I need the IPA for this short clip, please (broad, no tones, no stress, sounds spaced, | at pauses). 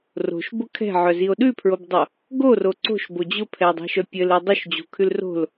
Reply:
r o̤ ʃ b ʊ kʰ ɛ̤ ʕ œ z i o̯ ɗ ʉ pʰ ɹ o b dˤ o | ɡ o r o ǀ o̤ ʃ b o d͡ʑ ʊ pʰ ɛ dˤ ɛ̤ ʃ œ pʲ ɘ l ɘ dˤ o ʃ d͡ʑ o̤ kʰ ʉ l r o̤ l